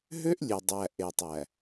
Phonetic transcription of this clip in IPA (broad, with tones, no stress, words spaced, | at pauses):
ɦø˦ʔlʲʉ˨ dˤæ˨ʔe˨tˤæ˨